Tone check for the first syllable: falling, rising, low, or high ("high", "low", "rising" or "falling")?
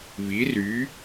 rising